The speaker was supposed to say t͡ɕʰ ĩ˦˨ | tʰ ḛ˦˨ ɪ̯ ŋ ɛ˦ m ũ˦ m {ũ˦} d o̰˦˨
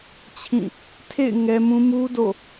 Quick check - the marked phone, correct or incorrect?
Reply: incorrect